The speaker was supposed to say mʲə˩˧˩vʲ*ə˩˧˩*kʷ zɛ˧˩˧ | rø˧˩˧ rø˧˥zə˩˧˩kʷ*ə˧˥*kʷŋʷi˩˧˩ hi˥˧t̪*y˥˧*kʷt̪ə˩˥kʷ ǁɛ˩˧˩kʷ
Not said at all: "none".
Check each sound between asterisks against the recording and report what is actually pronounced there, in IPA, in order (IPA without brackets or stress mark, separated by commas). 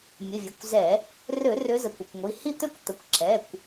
ə˩˧˩, ə˩˧˩, ø˥˧